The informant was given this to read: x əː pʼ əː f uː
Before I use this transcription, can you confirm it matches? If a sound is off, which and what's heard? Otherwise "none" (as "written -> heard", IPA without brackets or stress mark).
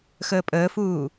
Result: none